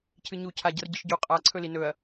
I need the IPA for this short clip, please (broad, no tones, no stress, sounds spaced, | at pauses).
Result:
cʰ ɨ ɲ u cʰ a ɟ ɐ r ɟ ɨ ʃ ɟ u qʼ a ǀʰ ɵ l i n ɵ ɐ̯